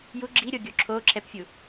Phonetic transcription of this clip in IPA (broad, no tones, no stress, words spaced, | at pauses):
ju ɡ͡ǁiɾʲoɡʲo ǁʰo ǁʰɛpfʲu